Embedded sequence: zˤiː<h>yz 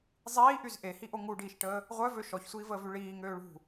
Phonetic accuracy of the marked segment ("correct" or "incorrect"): incorrect